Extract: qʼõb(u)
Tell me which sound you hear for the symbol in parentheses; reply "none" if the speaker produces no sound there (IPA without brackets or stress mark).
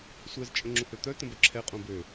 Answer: ø